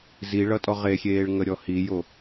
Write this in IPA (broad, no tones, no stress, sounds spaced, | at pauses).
z i ɭ ʌ tʼ ɔ ʁ e xʲ eː ɭ ŋ ə ɾʲ ɔ h i j o